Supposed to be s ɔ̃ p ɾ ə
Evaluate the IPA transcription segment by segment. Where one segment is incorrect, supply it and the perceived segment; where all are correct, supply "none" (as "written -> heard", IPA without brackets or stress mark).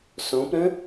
ə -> ə̃